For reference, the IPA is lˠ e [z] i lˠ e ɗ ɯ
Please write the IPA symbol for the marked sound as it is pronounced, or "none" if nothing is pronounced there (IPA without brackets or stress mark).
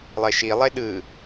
ʃ